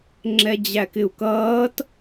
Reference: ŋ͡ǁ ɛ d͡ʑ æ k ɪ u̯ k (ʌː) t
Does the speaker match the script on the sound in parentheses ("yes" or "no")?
yes